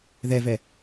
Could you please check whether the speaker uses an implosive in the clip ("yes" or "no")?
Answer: no